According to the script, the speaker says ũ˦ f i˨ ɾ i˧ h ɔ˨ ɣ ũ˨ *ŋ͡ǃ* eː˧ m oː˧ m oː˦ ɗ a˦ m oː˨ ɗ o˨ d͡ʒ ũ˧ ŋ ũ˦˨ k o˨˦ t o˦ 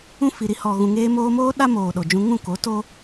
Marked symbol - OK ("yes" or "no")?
no